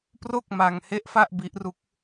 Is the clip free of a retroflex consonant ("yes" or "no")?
yes